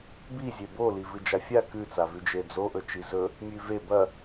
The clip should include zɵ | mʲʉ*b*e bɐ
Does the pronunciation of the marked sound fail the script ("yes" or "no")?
yes